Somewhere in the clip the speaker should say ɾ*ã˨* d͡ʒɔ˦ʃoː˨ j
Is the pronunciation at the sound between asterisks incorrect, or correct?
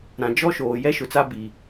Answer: correct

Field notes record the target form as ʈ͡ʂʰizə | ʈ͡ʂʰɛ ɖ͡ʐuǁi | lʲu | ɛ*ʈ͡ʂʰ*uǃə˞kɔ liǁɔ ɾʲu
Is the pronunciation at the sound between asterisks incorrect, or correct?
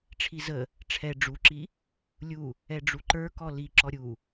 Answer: incorrect: ɖ͡ʐ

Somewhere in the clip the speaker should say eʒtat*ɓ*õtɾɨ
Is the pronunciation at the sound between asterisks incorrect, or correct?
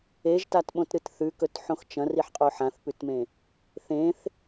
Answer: correct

